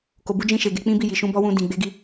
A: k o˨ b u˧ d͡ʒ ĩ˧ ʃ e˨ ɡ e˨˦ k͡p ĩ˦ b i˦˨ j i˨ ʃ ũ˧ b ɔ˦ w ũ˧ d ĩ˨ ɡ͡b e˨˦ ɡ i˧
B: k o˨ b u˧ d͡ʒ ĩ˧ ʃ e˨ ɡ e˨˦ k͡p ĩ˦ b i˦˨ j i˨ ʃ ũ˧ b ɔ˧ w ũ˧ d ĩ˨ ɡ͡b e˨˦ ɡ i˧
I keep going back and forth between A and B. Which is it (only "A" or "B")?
A